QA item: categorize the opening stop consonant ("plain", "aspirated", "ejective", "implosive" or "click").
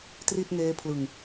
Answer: plain